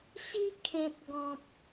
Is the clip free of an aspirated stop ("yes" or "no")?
no